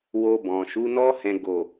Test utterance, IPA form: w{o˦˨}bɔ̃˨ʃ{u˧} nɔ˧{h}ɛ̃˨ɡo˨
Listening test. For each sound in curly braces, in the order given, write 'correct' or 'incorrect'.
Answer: incorrect: o˧, incorrect: u˨˦, correct

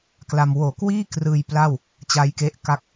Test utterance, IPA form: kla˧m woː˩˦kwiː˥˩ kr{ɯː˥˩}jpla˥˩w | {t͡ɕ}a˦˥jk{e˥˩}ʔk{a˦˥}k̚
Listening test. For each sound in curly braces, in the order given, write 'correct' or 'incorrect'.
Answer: incorrect: ɯː˧, correct, incorrect: e˦˥, incorrect: a˥˩

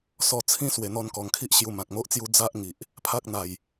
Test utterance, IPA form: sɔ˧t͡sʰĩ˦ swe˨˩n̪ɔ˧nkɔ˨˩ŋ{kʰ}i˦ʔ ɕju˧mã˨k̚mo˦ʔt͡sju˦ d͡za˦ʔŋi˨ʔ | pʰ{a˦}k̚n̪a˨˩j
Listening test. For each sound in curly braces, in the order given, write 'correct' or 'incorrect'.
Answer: correct, correct

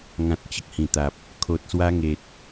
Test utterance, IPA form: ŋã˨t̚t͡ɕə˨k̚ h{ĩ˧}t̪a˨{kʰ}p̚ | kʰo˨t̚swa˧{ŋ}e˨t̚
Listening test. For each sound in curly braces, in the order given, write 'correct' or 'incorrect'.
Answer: incorrect: ĩ˨˩, incorrect: none, correct

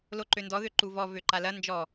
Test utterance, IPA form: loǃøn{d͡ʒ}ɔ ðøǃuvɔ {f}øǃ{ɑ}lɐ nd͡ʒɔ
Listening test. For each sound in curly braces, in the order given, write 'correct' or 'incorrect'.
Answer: incorrect: d, incorrect: v, incorrect: a

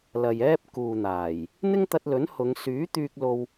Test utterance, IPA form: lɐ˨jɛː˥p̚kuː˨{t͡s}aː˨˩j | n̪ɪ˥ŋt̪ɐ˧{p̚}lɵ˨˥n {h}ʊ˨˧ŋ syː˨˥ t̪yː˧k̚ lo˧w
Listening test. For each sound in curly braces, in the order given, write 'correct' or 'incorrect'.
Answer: incorrect: n̪, incorrect: t̚, correct

